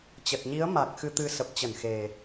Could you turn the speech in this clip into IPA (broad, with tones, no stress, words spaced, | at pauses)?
t͡ɕə˨˩t̚ɲi˨˦ə̯ ma˨˩k̚ xɨ˧t̪ɨ˧ sə˨˩p̚t͡ɕə˧˩n xe˨˩